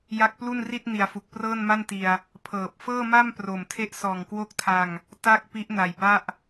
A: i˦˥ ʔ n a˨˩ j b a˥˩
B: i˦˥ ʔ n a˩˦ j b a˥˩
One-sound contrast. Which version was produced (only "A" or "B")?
A